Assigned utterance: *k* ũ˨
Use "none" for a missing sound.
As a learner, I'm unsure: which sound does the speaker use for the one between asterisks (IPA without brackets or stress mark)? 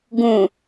ɡ